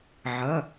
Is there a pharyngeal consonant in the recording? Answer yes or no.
yes